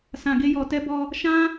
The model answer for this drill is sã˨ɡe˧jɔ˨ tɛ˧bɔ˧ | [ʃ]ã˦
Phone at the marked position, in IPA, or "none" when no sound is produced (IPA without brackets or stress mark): ʃ